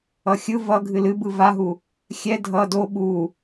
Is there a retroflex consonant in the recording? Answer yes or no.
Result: no